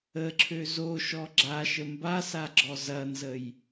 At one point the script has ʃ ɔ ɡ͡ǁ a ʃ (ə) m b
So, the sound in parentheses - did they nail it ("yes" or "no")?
yes